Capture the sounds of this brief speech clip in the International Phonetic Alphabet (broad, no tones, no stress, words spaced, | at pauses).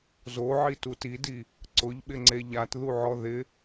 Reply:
zoʕitu tidi | ǀʊʎɓɪŋ͡ǀe ʎatðuʕɔ ðɪ